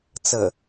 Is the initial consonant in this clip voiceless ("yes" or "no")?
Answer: yes